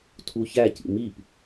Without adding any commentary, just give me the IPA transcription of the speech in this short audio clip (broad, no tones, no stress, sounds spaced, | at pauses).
tʰ u ç æ c ḭ m i p